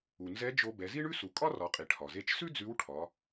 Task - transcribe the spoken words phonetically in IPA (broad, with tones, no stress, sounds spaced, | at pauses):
u˩ n z ɛ˧˥ d͡ʒ o˧ b ɛ˩˧ z i˥ ɳ ʉ˥ s u˩˧ kʼ ɒ˥ r ɒ˩˧ qʼ i˩ ʈʰ ɒ˩ z e˧ t͡ʃ s ʉ˥ d͡z ʉ˧˥ w ʈʰ ɒ˩˧